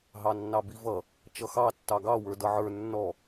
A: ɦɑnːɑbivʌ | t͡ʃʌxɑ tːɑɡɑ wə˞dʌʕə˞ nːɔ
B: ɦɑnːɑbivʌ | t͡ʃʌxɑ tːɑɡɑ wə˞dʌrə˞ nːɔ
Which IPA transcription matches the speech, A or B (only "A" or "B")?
A